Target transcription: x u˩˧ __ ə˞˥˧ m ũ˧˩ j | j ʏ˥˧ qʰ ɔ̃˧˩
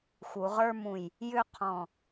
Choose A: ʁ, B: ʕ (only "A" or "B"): A